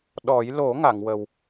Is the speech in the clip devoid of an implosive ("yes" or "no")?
no